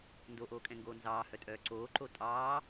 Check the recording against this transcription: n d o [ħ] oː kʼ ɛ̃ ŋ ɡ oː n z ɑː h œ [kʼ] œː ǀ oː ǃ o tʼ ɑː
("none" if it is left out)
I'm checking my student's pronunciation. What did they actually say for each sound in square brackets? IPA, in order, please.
ʔ, tʼ

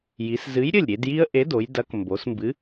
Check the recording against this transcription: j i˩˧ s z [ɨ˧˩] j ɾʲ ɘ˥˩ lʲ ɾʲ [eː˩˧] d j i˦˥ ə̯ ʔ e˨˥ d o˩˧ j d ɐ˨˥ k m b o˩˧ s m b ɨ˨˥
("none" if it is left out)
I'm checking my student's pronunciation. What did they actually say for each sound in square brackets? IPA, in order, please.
ɨ˨˥, e˩˧

